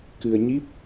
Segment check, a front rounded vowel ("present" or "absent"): absent